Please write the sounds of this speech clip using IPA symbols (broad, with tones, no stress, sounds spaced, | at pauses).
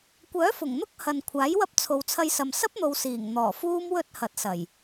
kʷ œː˨˥ f ʊ˨˩ ŋ n̪ ʊ˥ k̚ h ɐ˨ n kʷʰ aː˨˥ j w ɐ˥ p̚ t͡sʰ o˨ w t͡sʰ ɐ˧ j s ɐ˨ m s ɐ˥ p̚ n̪ o˨ w s iː˨˩ ŋ n̪ ɔː˨˩ f uː˥ m w ɵ˥ t̚ h ɐ˨˥ t̚ s ɐ˨˩ j